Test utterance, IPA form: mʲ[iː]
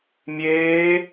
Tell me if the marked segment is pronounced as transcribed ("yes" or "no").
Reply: no